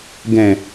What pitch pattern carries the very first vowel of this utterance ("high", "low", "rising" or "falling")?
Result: low